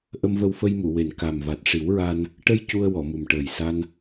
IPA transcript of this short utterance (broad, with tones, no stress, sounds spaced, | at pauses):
ʔ ə˧ m v ə˧ w f ə˧ j m u˨˩˨ w e˨˩ n k a˨˩ m v a˨˩ t̚ ʂ i˨˩˦ w ɹ a˧ n | ʈ ə˧ j c u˧ ə̯ w ɔ˨˩˨ m u˨˩ m ʈ əː˨˩ j s a˧ n